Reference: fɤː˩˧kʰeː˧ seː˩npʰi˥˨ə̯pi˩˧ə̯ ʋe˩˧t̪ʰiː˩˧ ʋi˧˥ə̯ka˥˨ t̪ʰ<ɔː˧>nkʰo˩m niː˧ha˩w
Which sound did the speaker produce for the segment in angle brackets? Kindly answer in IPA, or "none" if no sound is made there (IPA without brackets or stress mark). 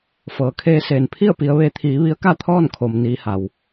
ɔː˥˨